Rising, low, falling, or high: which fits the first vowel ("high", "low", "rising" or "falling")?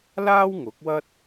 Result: high